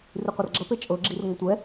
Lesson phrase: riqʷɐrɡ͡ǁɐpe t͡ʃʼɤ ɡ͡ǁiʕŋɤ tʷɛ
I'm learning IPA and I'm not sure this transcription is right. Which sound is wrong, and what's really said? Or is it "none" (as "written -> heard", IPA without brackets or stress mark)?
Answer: ʕ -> r